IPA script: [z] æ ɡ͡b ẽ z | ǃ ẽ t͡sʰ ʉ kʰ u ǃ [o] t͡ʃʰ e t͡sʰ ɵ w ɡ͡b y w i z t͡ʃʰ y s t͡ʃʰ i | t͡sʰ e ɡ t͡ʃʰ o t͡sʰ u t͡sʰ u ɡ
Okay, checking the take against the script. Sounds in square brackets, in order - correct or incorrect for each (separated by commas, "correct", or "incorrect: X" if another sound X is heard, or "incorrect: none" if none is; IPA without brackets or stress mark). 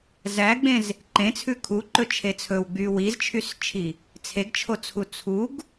correct, incorrect: ɵ